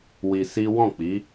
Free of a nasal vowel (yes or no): no